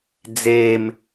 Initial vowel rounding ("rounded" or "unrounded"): unrounded